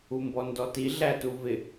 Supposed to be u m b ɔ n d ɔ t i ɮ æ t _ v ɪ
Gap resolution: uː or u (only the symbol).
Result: u